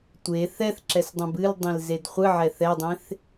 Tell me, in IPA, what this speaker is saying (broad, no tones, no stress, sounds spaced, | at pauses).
tʷ e θ ɛ θ ǁ ɛ s dˤ ɛ̃ b ɨ l dˤ ĩ l z e d χʷ ɨ ʕ ɛ θ ɛ dˤ ẽ θ